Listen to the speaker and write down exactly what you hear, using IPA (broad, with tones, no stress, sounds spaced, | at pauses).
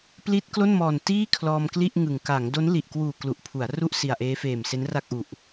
p l i˦˥ t̚ k l o˥˩ n m ɔː˨˩ n t iː˥˩ kʰ l ɔː˧ m k l i˥˩ ʔ ŋ ɯ˨˩ ŋ k a˩˦ ŋ d o˦˥ n l i˨˩ ʔ k w uː˨˩ k l u˨˩ ʔ pʰ u˩˦ a̯ r u˥˩ ʔ s i˨˩ a̯ ʔ eː˦˥ f eː˨˩ m s e˦˥ n r a˥˩ k̚ ʔ u˨˩ ʔ